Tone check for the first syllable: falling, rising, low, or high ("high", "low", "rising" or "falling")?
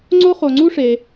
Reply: high